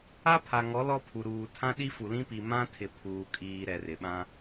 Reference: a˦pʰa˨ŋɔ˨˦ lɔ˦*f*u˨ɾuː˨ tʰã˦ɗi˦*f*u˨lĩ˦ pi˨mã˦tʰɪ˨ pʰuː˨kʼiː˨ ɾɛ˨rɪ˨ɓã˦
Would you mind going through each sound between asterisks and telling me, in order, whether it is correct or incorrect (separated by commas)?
incorrect, correct